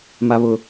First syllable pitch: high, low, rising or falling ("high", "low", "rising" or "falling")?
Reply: high